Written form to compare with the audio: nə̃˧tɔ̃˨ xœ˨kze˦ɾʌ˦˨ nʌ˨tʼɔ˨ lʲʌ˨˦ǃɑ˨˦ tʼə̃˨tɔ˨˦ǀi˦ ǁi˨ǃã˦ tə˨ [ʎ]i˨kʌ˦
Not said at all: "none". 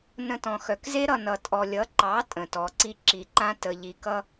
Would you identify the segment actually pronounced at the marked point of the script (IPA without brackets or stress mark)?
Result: ʎ